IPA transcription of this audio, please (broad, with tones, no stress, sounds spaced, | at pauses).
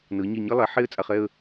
n ɤ˩˧ ɲ ɛ˧˩ ɲ ɤ˥ lˠ ɛ˩˧ ħ e˥ ə̯ t͡sʼ a˧ χ ɛ˥˧ ə̯